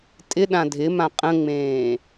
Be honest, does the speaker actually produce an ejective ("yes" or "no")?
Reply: yes